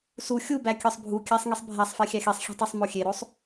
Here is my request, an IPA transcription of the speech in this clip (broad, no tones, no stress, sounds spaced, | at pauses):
s u xʲ u b æ kʲ ɒ sˤ bʱ u kʲ æ sˤ ŋ i sˤ bʱ æ sˤ f e xʲ æ x i sˤ xʲ e̤ tˤ e sˤ m o xʲ e ɾ o sˤ